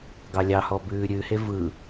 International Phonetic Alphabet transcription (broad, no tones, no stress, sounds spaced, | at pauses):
ɡ ɑ lʲ ɑ h ɔ b ʉː ɾʲ ʉ h e v ɯ